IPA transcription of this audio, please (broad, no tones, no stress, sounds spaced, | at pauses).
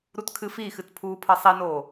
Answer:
ɾ u t kʰ ɨ f i x ɨ t pʰ uː pʰ ɤ sˤ i n oː